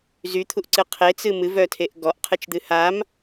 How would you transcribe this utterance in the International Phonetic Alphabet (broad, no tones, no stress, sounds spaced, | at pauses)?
z y t̪ʰ u ʔ ǀ ɨ qʰ e t͡s ɨ m ɨ v œ tʰ e ʔ ɡ ɔ ʔ qʰ ɨ t͡ʃ d̪ ɨ h a m